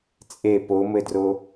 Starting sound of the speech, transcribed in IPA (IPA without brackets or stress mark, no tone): t͡sʼ